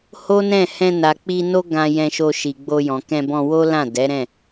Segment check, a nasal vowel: present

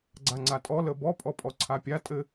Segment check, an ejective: present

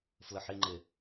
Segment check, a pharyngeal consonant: present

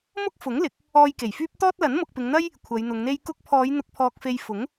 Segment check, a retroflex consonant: absent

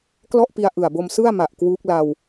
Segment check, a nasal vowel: absent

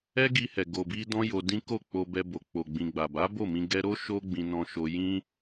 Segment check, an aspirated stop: absent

